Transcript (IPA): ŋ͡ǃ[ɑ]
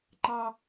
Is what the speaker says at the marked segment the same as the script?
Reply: yes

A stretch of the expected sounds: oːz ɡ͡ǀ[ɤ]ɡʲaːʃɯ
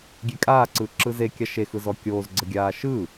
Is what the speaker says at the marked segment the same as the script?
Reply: yes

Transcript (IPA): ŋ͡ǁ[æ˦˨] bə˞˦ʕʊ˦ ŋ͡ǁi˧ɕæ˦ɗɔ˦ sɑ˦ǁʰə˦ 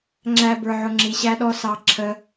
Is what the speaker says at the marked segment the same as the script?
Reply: no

